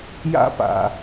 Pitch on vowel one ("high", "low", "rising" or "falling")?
high